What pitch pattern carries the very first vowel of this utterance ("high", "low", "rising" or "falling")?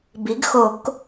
rising